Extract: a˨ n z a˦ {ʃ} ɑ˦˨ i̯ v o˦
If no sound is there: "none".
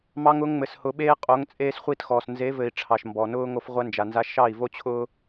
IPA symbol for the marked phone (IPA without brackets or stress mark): ʃ